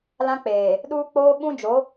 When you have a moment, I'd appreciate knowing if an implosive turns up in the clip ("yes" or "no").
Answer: yes